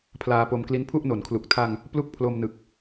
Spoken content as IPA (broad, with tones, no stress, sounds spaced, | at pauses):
pʰ l aː˧ p o˧ m k l i˦˥ n pʰ u˥˩ ʔ n o˩˦ n kʰ l u˨˩ k̚ tʰ a˧ ŋ | p l u˥˩ k̚ pʰ l o˧ m n ɯ˨˩ k̚